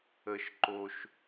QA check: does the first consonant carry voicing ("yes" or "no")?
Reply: no